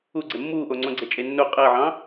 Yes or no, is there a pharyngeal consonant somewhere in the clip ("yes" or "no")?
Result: yes